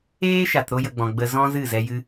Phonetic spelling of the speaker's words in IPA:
eː˦ ʃ a˨ t ɾ o˧ j ə˨ ɡ͡b ɔ̃˨ ɡ͡b ə˧ z ɔ̃˦ z ɨ˦˨ z ɛ˧ j ɨ˦

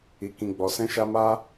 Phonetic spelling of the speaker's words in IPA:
i˨ k ĩ˨ ɡ͡b ɔ˨ s ɛ̃˧ ʃ a˧ m a˧

